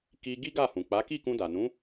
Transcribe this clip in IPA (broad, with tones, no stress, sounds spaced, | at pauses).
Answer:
k i˧ ɡ i˦ ɡ a˦˨ h ũ˨ k͡p a˨˦ k i˦˨ k ũ˧ d a˨ n ũ˨˦